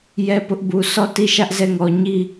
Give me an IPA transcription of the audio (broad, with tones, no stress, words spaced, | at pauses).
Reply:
jɛ˦pʊ˦ʔbu˨ sɔ˦˨ti˦˨ʃä˦ʔ zɛ˦˨ŋɔ˨ ɲi˦˨